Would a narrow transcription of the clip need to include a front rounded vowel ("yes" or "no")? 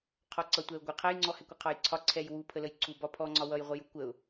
no